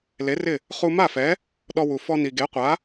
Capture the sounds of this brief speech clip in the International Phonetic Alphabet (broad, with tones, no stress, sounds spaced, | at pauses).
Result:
l e˩˥ r ɪ˥˩ | χ u˧ m a˥˩ f ɛ˩˥ | ɗ ɔ˧ w u˩ f ɔ˧ n i˩ ɡ e˩˥ qʷ a˩˥